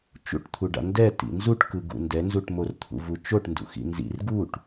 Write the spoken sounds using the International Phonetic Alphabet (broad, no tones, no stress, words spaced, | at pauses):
t͡ʃṵʈt̪ʰuɖa̰ ndɛ tḭnzuʈkɯ ɡṵndɛnzuʈ mort̪ʰṵvut͡ʃoʈ ndṵxḭnzḭr ɡuʈ